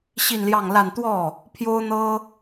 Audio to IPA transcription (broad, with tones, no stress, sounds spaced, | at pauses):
ɕ i˥˧ n l j ɑ˥˧ ŋ l a˥˧ n t̪ w ɔ˥˩ | pʰ j o˥ ʊ̯ n̪ ɤ˥